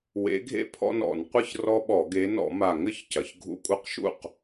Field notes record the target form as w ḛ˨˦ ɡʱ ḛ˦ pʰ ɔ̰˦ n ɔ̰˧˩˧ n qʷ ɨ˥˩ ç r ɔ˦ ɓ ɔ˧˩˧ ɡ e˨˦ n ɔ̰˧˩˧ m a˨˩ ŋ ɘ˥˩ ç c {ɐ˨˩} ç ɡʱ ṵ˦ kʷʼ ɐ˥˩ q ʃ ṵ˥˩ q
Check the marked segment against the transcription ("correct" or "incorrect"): correct